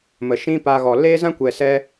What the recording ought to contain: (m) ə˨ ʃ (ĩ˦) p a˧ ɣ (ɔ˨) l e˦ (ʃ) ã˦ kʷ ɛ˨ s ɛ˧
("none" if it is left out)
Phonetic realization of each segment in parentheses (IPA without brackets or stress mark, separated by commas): m, ĩ˦, ɔ˨, z